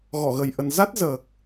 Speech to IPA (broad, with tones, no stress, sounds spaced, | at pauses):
ɣ ɔ˧˩ ɣ ə˨˩ j ʔ ə˨˩ n z a˦˥ t̚ z əː˨˩ k̚